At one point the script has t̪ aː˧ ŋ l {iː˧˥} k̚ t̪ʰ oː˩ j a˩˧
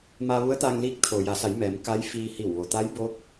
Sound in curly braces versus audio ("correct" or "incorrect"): correct